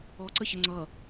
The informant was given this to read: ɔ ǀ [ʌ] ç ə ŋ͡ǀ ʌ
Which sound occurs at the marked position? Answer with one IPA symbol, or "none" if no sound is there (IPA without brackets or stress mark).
ə